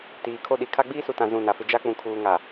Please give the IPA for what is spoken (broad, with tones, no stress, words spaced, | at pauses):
tiː˨kʰo˦ɗi˨ kʰa˦ɡ͡biː˦su˨tã˨ zũ˦˨na˨fɪ˦ d͡ʒa˦k͡pũ˨kʰuː˨ŋa˨